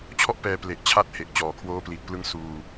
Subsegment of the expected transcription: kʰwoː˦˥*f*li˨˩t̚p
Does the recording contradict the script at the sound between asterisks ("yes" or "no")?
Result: yes